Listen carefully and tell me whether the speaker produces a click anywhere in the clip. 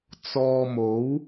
no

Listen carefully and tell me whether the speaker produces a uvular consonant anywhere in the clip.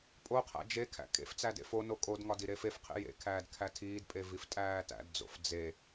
yes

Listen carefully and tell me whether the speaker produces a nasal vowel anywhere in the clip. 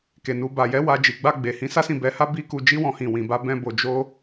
yes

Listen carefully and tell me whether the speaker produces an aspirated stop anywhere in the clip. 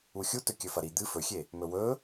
no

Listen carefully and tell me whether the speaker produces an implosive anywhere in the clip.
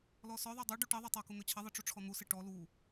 no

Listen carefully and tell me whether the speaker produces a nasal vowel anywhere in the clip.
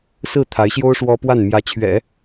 no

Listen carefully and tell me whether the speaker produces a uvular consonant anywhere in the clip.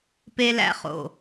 yes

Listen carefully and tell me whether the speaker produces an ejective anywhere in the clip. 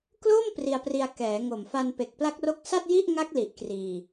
no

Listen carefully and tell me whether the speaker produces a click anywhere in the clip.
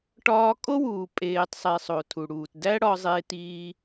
no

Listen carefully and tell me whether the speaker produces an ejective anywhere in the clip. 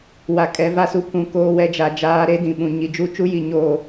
yes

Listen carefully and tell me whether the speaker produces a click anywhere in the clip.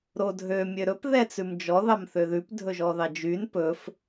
no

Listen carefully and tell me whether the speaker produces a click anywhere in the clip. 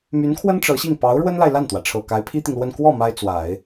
no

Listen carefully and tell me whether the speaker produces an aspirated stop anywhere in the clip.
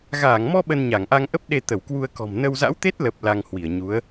no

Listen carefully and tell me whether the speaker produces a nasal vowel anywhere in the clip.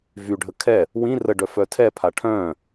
yes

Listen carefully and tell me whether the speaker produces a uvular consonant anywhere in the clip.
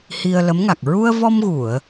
no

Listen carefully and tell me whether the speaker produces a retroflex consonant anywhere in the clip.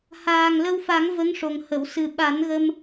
yes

